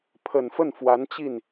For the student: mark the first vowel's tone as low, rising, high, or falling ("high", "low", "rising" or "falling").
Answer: low